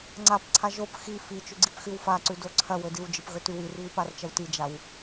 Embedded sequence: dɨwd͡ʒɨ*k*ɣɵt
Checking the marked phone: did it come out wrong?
yes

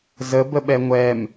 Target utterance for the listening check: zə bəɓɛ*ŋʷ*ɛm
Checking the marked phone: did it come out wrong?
no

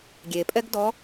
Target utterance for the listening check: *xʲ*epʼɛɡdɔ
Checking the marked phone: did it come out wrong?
yes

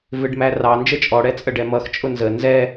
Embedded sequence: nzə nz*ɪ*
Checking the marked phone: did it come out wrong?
yes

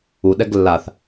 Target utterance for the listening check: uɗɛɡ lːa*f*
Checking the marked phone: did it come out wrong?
yes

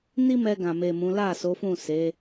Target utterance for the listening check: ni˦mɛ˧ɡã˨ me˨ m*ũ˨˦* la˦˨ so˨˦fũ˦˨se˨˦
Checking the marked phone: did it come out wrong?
no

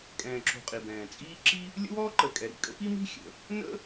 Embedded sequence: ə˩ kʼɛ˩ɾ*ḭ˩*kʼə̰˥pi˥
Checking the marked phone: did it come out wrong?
no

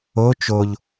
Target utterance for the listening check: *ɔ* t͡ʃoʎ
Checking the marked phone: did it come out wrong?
yes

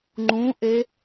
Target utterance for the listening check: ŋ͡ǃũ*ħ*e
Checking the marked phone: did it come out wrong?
yes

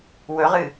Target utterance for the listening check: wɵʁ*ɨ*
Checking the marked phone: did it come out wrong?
no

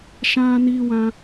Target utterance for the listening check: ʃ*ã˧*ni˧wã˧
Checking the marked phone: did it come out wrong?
no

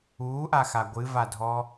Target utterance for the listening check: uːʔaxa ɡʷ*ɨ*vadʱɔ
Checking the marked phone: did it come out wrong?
no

